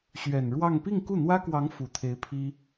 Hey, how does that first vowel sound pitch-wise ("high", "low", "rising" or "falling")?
low